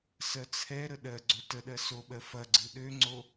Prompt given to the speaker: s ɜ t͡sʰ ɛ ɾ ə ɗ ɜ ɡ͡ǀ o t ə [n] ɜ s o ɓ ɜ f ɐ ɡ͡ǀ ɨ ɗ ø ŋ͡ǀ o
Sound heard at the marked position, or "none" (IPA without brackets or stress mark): ɗ